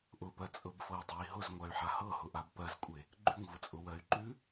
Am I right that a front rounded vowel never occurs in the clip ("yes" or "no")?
no